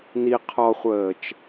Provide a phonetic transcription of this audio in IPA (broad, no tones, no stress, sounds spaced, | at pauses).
n i qʰ ɔ χʷ əː t͡ʃ